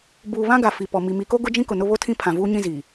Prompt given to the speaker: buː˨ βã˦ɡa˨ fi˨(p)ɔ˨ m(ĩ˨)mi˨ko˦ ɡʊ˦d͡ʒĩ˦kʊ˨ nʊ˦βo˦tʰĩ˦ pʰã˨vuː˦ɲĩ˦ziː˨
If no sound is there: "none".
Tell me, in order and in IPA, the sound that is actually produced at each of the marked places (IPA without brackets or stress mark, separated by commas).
p, i˨